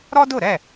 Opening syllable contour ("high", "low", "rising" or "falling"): high